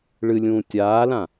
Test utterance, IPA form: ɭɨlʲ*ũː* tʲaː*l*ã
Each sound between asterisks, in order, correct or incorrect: correct, correct

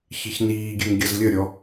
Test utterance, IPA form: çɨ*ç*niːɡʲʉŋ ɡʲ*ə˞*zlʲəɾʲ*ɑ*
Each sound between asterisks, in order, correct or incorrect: correct, incorrect: ʌ, incorrect: ɔ

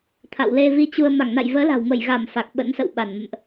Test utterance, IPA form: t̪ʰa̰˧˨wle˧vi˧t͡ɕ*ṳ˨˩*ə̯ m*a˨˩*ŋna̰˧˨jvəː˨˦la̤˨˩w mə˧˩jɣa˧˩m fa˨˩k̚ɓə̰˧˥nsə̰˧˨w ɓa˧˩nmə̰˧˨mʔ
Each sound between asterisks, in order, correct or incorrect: incorrect: u˧, incorrect: a˧˩

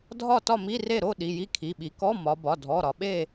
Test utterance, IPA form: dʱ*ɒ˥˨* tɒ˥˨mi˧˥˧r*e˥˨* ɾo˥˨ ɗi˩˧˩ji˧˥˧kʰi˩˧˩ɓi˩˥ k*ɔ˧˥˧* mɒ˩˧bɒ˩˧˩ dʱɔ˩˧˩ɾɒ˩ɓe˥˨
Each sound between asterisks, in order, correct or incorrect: correct, correct, correct

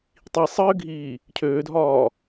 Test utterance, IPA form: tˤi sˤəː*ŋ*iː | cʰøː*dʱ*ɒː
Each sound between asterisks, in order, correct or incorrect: incorrect: ɡʱ, correct

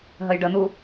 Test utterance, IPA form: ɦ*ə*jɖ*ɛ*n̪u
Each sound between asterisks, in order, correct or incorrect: correct, incorrect: ə

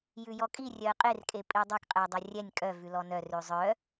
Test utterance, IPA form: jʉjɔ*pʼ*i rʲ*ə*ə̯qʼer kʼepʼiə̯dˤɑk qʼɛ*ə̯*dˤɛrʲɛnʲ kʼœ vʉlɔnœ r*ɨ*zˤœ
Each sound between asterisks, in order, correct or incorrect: incorrect: kʼ, incorrect: œ, correct, incorrect: ʉ

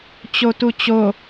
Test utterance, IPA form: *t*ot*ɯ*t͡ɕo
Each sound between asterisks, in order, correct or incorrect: incorrect: t͡ɕ, incorrect: u

